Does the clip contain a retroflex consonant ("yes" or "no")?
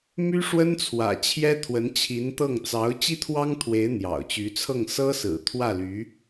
yes